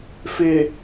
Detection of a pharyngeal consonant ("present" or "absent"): absent